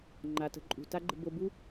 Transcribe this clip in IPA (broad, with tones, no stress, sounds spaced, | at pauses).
ŋ͡ǃ a˩ t ə̤˨ ǃʼ ṳ˩ t a˦ ɡ͡ǃ ə̤˨ b o˨ b u˦